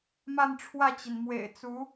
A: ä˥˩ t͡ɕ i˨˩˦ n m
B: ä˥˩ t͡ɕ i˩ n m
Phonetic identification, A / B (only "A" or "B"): B